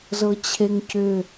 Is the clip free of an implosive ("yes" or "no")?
yes